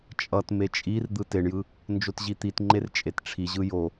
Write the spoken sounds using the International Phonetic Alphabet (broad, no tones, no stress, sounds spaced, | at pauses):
t͡ʃʼ ʌ t m e t͡ʃʼ i r d̪ ɯ t e ɳ j ɯ | n d͡ʒ o t ʑ i t̪ i t ŋ͡ǃ e r t͡ʃʼ e t ʈ͡ʂʰ i ʑ ɯ j o